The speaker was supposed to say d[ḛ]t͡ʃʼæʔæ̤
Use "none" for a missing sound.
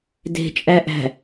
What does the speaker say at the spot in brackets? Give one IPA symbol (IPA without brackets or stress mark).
e̤